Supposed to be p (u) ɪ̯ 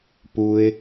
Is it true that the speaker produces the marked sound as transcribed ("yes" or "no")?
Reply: yes